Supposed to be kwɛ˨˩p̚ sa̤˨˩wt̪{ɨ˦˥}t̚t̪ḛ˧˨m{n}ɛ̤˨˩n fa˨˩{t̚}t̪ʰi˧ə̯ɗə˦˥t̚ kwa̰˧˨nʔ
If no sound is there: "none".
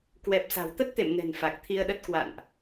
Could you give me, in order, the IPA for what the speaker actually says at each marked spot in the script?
ə˦˥, n, k̚

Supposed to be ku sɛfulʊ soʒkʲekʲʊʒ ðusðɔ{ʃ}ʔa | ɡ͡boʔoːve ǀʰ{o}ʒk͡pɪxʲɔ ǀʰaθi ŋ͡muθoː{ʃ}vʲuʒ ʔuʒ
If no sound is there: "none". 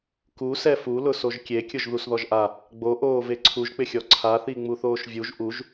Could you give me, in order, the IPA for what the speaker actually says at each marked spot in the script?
ʒ, u, ʃ

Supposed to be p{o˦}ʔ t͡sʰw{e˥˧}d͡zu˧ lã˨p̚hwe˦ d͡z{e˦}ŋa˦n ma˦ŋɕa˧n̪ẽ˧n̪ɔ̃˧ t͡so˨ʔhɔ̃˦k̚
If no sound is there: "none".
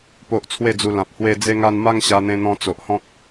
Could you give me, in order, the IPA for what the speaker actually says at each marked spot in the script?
o˦, e˥˧, e˦

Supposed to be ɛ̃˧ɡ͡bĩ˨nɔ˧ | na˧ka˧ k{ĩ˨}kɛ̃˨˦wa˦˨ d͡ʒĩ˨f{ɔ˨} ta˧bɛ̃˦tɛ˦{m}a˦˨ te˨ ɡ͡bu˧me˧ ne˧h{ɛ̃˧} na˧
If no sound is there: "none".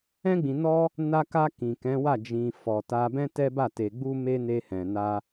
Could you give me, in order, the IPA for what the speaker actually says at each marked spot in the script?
ĩ˨, ɔ˨, b, ɛ̃˨

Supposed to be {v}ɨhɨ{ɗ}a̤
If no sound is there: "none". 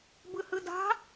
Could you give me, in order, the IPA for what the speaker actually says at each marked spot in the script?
b, d

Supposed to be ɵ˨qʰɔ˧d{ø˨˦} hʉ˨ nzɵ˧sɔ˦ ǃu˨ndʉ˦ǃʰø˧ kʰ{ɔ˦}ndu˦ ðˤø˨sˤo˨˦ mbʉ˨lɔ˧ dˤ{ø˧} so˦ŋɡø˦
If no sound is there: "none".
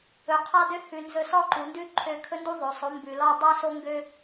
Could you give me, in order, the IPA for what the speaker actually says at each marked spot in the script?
ø˧, ɵ˦, ø˦

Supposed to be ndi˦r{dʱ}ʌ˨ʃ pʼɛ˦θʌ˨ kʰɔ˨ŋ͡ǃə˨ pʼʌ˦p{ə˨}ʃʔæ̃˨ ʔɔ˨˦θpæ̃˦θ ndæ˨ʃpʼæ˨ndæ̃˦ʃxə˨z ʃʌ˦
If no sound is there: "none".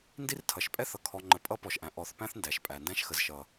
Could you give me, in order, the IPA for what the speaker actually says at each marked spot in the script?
tʰ, ɔ˨

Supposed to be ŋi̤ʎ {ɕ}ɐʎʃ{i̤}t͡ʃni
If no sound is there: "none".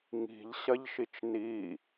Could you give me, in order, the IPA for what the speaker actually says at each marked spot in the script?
ɕ, i

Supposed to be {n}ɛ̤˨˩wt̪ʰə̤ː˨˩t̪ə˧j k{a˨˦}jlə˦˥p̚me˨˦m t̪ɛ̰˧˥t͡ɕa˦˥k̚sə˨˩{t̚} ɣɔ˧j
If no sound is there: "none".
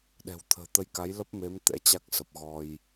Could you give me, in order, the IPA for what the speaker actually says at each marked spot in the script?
ɗ, a˨˦, p̚

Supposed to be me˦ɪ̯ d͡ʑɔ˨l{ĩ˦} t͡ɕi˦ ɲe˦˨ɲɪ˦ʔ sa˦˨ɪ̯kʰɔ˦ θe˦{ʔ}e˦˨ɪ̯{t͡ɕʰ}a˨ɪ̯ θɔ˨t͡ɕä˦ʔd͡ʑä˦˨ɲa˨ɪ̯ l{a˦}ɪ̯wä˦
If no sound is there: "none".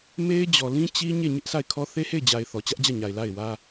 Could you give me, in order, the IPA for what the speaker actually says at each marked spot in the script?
ĩ˦, h, d͡ʑ, a˦˨

